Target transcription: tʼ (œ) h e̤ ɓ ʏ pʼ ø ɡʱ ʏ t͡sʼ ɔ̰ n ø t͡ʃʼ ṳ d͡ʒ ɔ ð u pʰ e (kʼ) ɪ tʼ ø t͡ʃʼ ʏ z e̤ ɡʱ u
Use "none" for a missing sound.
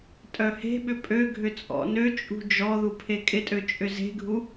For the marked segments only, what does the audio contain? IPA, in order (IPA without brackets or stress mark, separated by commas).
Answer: œ, kʼ